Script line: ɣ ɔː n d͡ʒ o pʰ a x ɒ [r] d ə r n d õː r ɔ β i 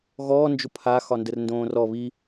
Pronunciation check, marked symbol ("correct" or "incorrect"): incorrect